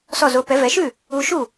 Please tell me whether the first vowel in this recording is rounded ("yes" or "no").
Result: yes